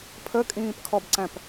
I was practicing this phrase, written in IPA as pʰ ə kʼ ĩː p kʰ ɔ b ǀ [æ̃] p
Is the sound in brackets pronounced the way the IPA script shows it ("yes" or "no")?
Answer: yes